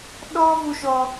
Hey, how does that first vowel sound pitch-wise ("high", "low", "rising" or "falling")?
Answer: high